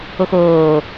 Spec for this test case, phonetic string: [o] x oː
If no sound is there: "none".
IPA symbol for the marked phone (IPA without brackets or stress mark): o